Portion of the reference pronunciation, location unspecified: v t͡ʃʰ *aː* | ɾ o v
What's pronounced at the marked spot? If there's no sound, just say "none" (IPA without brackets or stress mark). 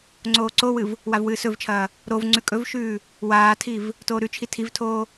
ɐː